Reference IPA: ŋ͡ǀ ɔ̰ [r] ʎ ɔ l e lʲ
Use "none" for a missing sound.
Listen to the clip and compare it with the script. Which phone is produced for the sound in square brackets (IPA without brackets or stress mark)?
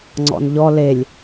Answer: n